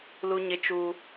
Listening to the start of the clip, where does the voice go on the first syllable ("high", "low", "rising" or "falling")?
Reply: high